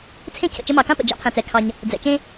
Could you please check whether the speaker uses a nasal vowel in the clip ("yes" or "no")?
yes